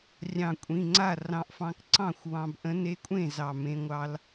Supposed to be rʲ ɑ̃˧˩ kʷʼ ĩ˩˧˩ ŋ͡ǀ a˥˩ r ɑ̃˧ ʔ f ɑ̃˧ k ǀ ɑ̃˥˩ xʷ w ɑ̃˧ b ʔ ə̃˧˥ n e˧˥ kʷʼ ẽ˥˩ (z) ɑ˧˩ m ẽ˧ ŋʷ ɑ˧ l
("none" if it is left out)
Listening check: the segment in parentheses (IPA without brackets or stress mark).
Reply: z